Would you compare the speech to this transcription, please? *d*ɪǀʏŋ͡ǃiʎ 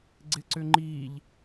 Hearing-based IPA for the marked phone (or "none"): ɡ͡ǀ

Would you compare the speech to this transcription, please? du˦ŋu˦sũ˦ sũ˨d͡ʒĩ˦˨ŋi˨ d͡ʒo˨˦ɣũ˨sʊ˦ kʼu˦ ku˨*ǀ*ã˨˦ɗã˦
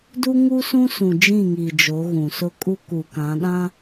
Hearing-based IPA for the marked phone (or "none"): k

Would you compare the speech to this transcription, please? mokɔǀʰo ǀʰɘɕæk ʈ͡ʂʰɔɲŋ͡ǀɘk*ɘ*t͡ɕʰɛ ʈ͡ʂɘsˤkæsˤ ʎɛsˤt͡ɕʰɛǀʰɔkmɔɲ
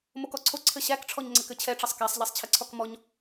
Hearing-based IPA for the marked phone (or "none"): ɘ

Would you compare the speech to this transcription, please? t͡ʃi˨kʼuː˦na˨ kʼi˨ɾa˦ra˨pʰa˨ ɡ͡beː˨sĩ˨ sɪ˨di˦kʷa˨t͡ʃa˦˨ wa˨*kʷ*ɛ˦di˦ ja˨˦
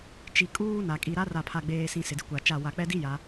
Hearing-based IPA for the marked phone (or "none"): k͡p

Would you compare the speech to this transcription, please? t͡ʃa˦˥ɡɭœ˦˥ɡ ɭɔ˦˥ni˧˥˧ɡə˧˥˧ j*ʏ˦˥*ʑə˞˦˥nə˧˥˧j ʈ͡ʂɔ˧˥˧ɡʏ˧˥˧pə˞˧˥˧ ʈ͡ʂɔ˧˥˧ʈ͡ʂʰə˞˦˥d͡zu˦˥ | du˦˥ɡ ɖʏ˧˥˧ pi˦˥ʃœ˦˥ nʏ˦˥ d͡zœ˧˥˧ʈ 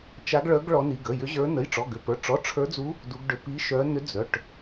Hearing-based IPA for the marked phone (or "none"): ʏ˦˥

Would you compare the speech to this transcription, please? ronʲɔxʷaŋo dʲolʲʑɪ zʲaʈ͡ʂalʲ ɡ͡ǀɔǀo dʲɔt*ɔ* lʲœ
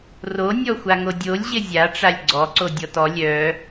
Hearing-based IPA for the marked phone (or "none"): ɔ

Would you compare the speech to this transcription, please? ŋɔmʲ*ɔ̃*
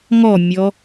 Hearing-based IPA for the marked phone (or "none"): ɔ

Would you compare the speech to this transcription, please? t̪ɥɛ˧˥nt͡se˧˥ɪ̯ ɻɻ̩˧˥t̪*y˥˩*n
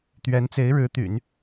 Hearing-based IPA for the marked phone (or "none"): y̰˨˩˦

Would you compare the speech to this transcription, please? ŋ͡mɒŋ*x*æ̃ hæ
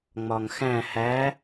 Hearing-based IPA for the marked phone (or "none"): x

